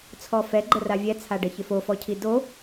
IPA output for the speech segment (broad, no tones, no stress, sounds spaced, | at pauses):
t͡sʰ ɔ f ɛ ɡ͡ǃ ə r a vʲ ɛ t͡sʰ a ɖ ə ç ɪ f o f ɔ cʰ i d o